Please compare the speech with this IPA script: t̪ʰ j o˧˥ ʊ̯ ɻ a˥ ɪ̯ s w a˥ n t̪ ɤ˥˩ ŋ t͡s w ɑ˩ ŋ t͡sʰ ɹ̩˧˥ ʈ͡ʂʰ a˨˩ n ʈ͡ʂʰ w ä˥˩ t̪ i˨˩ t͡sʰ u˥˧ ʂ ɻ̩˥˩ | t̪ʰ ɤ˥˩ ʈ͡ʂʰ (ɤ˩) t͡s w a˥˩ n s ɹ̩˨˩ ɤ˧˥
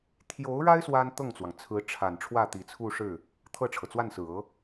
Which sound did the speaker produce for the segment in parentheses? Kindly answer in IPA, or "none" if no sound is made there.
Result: ɤ˩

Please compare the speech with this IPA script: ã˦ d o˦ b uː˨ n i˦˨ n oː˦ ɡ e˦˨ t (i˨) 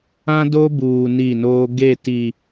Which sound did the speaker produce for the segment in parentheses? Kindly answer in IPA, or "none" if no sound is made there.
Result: i˨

